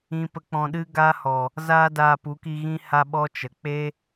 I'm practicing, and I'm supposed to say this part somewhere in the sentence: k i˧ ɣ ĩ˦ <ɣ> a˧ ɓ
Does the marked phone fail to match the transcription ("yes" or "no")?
yes